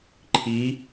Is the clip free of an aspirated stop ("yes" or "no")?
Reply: no